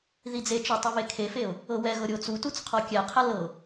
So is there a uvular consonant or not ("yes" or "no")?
yes